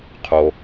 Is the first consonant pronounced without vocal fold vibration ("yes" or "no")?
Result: yes